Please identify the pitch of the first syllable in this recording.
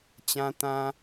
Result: high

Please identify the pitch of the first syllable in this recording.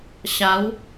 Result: rising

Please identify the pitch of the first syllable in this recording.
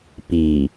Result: low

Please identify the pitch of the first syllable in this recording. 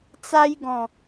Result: high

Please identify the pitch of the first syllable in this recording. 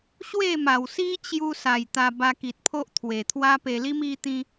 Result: falling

